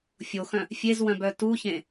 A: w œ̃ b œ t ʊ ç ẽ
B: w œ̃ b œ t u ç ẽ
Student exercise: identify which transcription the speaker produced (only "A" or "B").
B